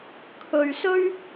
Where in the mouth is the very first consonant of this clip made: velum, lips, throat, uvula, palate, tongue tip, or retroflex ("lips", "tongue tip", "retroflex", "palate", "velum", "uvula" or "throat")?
velum